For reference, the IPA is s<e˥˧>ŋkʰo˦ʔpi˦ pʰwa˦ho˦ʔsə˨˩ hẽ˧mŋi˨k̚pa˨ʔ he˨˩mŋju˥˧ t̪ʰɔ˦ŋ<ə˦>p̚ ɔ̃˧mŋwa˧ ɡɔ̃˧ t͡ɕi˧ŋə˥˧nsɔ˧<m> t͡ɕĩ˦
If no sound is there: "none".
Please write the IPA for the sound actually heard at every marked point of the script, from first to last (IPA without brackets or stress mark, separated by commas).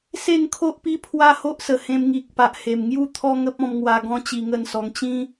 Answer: e˥˧, ə˦, ŋ